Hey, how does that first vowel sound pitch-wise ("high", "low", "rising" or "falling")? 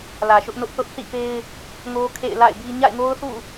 low